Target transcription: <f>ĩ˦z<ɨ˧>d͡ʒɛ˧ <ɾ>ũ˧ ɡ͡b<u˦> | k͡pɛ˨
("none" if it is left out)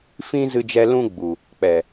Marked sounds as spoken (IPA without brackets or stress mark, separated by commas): f, ɨ˧, l, u˨